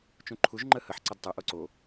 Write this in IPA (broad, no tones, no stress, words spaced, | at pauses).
t͡ʃũǃʰuʒ ŋ͡ǃəhəħ ǀədtˤɤ ʔoǀo